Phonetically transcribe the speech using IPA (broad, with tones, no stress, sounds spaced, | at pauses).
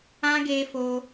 ã˦ ɡ e˦ f o˦